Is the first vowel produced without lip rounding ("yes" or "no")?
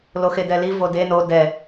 no